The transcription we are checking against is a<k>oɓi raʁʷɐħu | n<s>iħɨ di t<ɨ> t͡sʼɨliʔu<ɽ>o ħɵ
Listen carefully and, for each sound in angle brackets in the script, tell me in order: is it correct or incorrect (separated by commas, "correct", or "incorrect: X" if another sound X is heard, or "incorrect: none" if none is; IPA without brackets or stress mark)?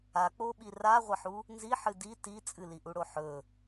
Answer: incorrect: k͡p, incorrect: z, incorrect: i, correct